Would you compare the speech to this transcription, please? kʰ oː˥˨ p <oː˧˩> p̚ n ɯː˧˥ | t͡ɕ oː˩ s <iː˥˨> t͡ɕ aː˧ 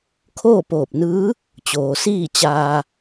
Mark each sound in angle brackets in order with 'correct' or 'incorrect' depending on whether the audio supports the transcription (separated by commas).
correct, correct